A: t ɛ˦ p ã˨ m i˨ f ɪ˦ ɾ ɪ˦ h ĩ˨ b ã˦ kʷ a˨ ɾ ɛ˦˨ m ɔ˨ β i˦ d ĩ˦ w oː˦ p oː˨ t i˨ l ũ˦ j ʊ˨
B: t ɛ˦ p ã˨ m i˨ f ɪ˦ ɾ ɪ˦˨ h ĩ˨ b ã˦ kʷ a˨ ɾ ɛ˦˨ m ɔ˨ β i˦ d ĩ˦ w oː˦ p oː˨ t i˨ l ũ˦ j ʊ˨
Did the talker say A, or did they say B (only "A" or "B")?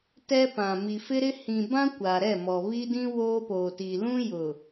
A